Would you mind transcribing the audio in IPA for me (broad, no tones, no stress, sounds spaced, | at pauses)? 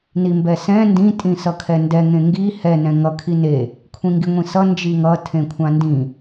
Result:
n i m b ɛ s ɛ̃ n d ĩ tʼ ĩ s ʌ kʰ ɛ n d ɛ ŋ ẽ ŋ ɡ i h ɛ n ɛ̃ ŋ ʌ kʰ i n e | kʷʰ ĩ ŋ ɡ i ŋʷ ĩ s ʌ n d͡ʒ i ŋ ʌ tʰ ẽ kʷʰ ã n d ĩ